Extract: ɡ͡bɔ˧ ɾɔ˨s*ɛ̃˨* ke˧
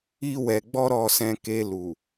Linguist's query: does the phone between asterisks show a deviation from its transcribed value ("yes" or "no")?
no